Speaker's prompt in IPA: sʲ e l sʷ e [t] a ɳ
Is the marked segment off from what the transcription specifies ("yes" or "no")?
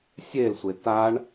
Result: no